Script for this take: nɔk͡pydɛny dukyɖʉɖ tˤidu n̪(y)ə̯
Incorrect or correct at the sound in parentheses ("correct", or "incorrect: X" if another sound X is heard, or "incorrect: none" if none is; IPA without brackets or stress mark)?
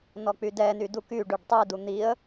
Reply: incorrect: i